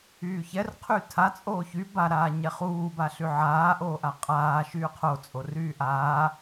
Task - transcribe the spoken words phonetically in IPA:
yː ç ɛ r qʰ y tʰ a t͡sʼ oː ç y b a ɾ aː ɲ ɛ χ uː b a ɬ y ʕ aː ʔ oː ʔ a qʼ aː ʃ yː qʰ o t͡sʼ o r yː ʔ aː

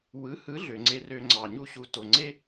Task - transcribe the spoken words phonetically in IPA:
w ɯ˩˥ h ɯ˩˥ ɮ ø˩ ŋ͡ǀ e˧ r ø˧ ŋ͡ǀ ɑ˩ ɲ u˧ ɕ u˩˥ t o˩ ŋ͡ǀ e˥

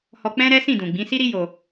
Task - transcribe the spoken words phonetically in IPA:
h ɔ˧ k͡p ɛ̃˦ ɾ ɛ˦ s ĩ˦˨ d ũ˨ ɡ͡b ĩ˨˦ s i˦ ɾ i˦ j o˧

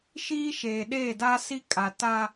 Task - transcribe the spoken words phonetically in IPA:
ʃ iː˦ ʃ eː˨ ɗ eː˦˨ d a˦ s i˦ kʼ a˨ t a˦

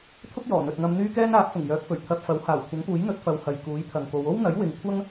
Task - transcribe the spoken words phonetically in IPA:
t̪ʰ ʊ˥ k̚ j ɔː˨˩ n̪ ɵ˨ t̚ ŋ ɐ˧ m n̪ yː˥ k ɛː˥ n aː˨˥ p̚ f ʊ˨˩ ŋ j œː˨˥ k̚ f ɵ˨˩ ɥ t̪ʰ ɐ˧ p̚ f ɐ˨˥ w h aː˨˩ w kʷʰ ɐ˨˥ ŋ p uː˨˥ j n̪ ɵ˨˥ t̚ f ɐ˨ w h ɐ˨ j k uː˨˥ j t̪ʰ ɐ˨ ŋ k o˨˧ w o˥ w n̪ ɐ˨˥ j w ɪ˨˧ ŋ kʷʰ ɐ˥ ŋ

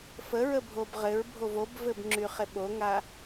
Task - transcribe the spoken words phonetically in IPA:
f ə ɹ ə bʱ o b ʁ ɘ ɹ bʱ o v o b v ɘ b ŋ͡ǁ y χ e ɓ o ŋ a

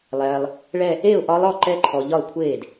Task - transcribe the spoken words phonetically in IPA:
lˠ ɛː˨ lˠ | ɭ ɛ˥˧ | e˥˩ ʊ̯ ʔ ɒ˧˥ lˠ ɔ˥˩ ǃ ɛ˧˥ ǃʰ ɔ˨ ʎ ɒ˥˩ ə̯ kʷʰ eː˥˩ d

